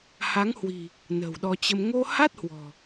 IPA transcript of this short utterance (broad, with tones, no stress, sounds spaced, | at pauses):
h a˨˦ ŋ h w i̤˨˩ | n ə̤˨˩ w ɗ ɔ˧ t͡ɕ ə˧ m ŋ o˧ h a˦˥ t̚ h w ɔ̤˨˩